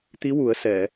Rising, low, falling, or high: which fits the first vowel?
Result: rising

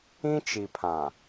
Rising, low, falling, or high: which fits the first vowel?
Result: high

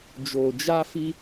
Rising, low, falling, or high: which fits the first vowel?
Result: low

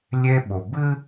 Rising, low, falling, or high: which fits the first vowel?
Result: high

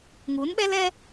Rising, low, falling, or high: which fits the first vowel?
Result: rising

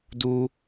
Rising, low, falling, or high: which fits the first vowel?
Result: high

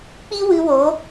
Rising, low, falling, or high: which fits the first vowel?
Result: high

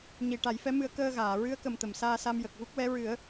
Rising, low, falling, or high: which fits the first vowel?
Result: low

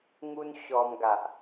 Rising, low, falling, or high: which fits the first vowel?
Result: high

